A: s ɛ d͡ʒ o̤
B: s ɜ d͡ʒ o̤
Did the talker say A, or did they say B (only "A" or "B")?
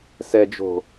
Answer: A